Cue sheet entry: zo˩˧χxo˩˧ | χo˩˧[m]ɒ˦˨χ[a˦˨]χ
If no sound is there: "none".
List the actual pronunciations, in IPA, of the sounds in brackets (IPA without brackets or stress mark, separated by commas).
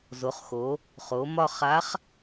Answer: m, a˧˥